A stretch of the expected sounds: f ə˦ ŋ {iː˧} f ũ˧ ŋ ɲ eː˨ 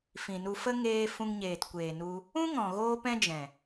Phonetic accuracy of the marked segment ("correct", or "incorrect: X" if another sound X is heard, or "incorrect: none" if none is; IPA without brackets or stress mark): incorrect: eː˧